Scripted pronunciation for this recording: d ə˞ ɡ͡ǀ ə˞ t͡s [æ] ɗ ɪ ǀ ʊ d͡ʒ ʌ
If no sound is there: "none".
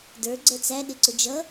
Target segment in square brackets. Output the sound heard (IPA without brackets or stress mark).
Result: æ